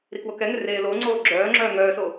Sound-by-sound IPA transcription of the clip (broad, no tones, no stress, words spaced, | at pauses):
ɾikwokɛŋʏ reːloŋ͡ǀoː ɡ͡ǁœːŋ͡ǁœː ŋœːso